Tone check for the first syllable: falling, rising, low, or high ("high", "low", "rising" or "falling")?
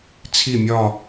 falling